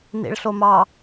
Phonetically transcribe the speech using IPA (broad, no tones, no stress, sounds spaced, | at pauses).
n ḭ ɭ ɬ o m ɑ